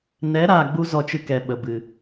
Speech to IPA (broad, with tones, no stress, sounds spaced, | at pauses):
n ɛ˨˦ ɾ aː˨ ɡ͡b u˧ z ɔ˨ t͡ʃ ɨ˦ k ɛ˨ ɓ ə˨ b ɨ˨